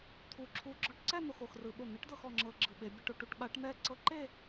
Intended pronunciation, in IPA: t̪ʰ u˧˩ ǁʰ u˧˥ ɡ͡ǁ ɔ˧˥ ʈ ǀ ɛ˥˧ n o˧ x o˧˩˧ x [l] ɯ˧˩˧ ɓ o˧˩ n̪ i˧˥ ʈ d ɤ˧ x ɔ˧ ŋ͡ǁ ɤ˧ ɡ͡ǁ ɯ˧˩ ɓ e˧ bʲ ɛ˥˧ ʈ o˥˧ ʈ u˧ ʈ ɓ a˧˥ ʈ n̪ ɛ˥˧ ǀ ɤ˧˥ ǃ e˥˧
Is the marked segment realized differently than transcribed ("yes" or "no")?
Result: yes